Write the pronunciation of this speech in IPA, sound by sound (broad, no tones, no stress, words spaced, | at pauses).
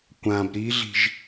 kʷãb ɾiɮi̤ʒ